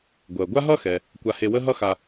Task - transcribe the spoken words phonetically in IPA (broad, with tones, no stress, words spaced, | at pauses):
ɡʷɜ˩ ɡʷa˥ɦʌ˥xɛ˩ | kʷa˨he˨wə˦ ɦʌ˦xa˨